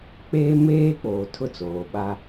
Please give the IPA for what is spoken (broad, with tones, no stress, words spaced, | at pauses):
k͡peː˦meː˦k͡poː˨ tʰʊ˦t͡soː˨ɓa˦